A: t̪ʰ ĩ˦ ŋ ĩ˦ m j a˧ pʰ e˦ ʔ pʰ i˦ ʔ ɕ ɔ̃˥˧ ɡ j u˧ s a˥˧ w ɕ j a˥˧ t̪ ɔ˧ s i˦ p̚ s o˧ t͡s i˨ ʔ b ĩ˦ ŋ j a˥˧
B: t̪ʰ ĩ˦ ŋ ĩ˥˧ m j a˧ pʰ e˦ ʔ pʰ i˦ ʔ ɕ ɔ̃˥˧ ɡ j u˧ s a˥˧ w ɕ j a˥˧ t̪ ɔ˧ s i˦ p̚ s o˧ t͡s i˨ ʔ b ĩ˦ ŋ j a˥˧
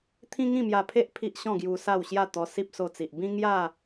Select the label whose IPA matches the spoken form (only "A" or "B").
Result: B